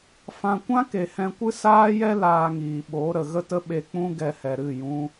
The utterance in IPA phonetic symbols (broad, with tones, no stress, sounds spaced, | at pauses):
f ã˧ kʷ ã˦ k e˨ h ɛ̃˧ kʷ ɨ˦ s aː˦ j ɛ˦ l aː˧ ŋ iː˨ ɓ oː˨˦ ɾ ə˨ ɣ ə˦ t ə˦ ɓ e˧ k͡p ũ˦ ɡ ɛ˧ h ɛ˨ ɾ ɨ˦˨ j ũ˧